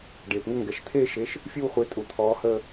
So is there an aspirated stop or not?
yes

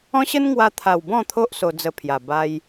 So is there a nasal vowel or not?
yes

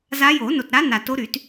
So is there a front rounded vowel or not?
yes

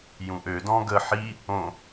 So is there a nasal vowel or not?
yes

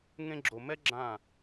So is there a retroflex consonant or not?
no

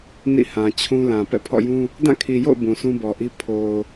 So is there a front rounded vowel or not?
no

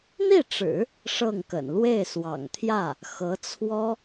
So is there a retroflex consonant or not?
yes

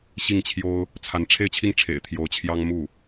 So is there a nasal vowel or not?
no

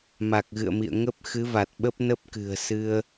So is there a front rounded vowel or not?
no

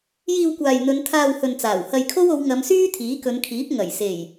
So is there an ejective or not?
no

